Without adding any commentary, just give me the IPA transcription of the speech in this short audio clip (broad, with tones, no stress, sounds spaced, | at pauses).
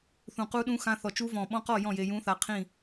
θ ũ˧˩ q u˦˥ ɗ ũ˦˥ x ã˦˥ θ ɔ˧˩ t͡ʃ u˦˥ v ɔ̃˧˩ ɓ ɔ̃˦˥ q ɔ˥˨ j ɔ̃˥˨ j e˧ j ũ˦˥ θ a˧ qʰ ĩ˥˨